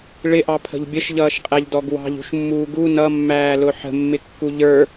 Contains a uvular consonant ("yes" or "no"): yes